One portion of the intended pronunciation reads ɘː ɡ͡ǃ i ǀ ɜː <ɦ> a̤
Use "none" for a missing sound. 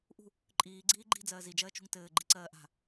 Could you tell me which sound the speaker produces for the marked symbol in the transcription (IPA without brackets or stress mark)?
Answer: ʔ